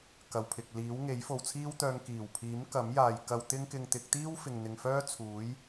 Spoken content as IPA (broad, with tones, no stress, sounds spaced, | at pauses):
k ɐ˨ w pʰ ɪ˨ k̚ l iː˨˥ w ŋ e˨˥ j f o˨ w t͡sʰ iː˥ w t̪ œː˧ ŋ k iː˨˩ w pʰ iː˨˥ m k ɐ˨˥ m j aː˨ j k ɐ˧ w t̪ ɪ˥ ŋ k ɪ˧ ŋ t̪ ɪ˨˥ k̚ t̪ iː˥ w f ɪ˨ ŋ n̪ ɪ˨ ŋ f œː˥ t͡sʰ uː˨˥ j